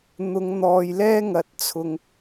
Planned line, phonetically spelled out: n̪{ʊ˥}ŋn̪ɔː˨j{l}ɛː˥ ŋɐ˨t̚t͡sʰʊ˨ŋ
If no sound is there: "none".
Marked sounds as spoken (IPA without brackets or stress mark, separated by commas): ʊ˨˧, l